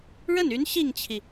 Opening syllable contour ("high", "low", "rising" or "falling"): falling